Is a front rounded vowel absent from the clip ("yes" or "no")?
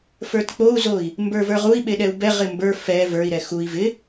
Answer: yes